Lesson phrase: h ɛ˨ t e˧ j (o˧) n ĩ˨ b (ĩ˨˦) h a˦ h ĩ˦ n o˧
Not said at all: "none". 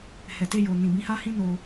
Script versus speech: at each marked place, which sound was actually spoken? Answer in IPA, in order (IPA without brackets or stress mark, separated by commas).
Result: o˨, ĩ˨˦